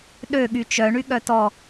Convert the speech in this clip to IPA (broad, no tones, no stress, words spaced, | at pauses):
ɗø ɠyt͡ʃœ ɳyɠœtɔ